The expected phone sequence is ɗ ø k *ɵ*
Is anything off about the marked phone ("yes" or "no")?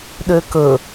no